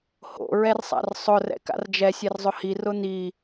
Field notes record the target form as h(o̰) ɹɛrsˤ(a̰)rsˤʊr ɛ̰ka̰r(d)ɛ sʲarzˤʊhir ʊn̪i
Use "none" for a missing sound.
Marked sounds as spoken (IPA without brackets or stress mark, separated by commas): o̰, a̰, d͡ʒ